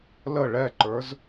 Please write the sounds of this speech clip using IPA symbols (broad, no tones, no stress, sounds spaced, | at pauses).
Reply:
l ə ɭ ɛ ǃ ə˞ z